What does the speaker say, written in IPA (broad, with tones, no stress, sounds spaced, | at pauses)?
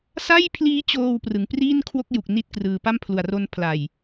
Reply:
s a˥˩ j pʰ l iː˦˥ t͡ɕ oː˧ w p r ɯ˨˩ ŋ p r iː˥˩ n kʰ w o˥˩ k̚ j u˨˩ k̚ n i˥˩ t̚ k r ɯː˧ p a˥˩ m pʰ l u˨˩ a̯ r o˦˥ n pʰ l a˨˩ j